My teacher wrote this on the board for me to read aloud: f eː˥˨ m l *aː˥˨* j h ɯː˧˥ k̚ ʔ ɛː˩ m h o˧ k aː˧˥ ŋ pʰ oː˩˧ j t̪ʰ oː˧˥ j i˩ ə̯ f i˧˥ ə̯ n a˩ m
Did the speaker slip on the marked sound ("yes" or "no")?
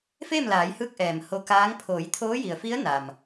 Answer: yes